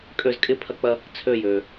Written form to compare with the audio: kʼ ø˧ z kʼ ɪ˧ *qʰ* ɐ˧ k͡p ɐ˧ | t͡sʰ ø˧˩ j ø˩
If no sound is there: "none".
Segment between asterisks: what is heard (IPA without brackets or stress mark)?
pʰ